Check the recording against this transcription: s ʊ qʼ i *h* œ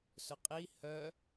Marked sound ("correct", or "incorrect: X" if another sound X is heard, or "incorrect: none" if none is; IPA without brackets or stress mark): correct